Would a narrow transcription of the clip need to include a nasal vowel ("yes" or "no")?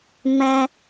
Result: yes